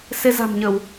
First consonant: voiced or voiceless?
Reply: voiceless